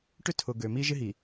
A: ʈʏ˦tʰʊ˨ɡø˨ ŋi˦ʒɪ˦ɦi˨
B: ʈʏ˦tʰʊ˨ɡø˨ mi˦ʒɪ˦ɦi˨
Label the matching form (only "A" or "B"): B